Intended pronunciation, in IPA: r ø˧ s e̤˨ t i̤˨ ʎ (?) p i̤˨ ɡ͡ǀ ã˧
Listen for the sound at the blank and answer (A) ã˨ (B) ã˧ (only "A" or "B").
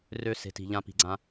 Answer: B